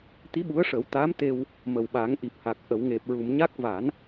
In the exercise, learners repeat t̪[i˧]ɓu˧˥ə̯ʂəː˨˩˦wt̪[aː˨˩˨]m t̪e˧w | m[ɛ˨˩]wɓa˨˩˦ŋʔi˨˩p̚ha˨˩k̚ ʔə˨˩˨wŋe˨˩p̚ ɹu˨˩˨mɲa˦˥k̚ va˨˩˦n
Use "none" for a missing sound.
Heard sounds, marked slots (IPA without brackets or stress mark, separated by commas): i˧˥, aː˧˥, ə˨˩